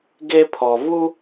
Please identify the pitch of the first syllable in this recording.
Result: high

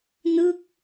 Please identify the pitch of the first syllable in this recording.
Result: falling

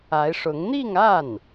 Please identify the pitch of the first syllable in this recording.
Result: rising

